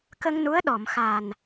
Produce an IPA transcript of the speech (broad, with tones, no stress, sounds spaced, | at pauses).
k ə˧ ŋ n u˧˥ ə̯ ɗ ɔ˨˩˨ m x a˨˩ n